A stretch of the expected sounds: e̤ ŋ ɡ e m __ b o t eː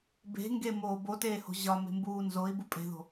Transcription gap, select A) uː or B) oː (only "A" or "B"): B